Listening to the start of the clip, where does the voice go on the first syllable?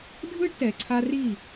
high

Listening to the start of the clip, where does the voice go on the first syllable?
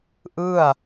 falling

